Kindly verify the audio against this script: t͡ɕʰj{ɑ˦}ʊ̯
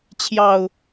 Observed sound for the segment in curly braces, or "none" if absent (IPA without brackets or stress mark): ɑ˨˩